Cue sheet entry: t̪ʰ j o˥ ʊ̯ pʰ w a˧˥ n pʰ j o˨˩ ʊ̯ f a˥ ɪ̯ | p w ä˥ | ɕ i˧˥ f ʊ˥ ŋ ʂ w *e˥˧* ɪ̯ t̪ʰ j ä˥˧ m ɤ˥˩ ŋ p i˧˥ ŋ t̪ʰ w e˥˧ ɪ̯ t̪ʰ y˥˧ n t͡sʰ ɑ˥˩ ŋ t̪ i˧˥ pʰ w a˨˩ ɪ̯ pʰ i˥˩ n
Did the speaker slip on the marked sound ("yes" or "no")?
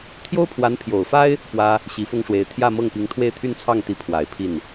yes